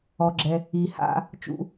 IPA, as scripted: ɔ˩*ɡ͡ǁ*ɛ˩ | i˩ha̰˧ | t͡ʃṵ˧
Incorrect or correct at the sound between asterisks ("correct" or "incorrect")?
correct